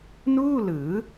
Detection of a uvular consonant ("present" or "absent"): absent